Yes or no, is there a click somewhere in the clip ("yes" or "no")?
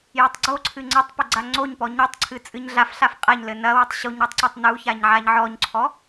yes